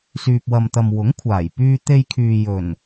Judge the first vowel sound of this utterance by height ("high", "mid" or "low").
high